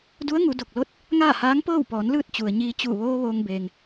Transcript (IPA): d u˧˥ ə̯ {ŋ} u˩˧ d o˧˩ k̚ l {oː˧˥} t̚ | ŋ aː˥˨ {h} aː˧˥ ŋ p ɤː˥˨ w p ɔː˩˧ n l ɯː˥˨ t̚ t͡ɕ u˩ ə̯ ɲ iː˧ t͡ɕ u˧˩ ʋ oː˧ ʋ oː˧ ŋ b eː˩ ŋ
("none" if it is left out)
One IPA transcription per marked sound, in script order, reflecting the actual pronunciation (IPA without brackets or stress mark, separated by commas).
ŋ, o˧˥, h